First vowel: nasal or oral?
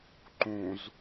nasal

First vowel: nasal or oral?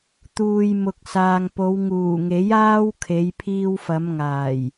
oral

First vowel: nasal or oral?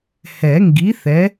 oral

